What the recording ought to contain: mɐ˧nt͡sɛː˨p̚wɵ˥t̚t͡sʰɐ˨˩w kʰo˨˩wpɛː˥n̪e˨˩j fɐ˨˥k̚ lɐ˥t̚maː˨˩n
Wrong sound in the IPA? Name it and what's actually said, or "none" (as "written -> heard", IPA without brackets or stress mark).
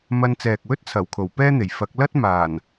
p̚ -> k̚